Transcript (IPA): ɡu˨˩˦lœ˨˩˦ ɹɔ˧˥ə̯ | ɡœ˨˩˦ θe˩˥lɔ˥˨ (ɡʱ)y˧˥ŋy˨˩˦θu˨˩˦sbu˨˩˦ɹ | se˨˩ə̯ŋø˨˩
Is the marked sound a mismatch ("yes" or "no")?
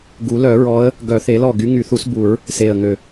yes